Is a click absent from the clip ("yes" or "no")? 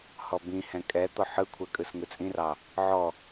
yes